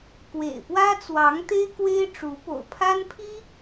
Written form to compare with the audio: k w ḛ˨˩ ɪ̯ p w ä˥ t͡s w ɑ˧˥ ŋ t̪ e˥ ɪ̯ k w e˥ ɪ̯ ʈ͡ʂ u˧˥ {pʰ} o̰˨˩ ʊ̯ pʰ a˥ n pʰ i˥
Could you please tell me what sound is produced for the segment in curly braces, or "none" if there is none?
p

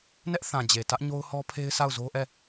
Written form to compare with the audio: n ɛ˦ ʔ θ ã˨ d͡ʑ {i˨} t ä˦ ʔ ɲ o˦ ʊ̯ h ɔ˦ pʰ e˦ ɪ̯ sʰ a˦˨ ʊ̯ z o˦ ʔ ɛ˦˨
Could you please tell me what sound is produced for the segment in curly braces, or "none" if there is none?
e˨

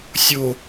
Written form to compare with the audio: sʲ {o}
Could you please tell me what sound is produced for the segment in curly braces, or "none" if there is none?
o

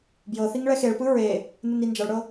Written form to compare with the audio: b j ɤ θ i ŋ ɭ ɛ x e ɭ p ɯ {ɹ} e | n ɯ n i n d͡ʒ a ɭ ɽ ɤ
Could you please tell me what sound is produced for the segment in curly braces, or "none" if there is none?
ɹ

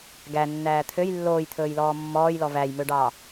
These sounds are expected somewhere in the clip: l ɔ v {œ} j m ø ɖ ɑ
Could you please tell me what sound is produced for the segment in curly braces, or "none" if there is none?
æ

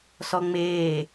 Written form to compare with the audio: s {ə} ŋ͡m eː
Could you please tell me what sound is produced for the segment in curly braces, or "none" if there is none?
ɔ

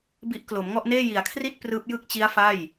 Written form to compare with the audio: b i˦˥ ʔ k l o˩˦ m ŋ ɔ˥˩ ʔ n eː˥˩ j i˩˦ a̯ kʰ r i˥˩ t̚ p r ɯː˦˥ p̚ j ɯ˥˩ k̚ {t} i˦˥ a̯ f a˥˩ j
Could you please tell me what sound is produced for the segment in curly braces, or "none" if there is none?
t͡ɕ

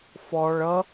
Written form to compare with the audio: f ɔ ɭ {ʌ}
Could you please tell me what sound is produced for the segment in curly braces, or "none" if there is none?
ʌ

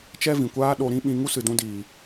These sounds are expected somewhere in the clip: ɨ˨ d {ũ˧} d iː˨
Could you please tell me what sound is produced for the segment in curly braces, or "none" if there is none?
ũ˧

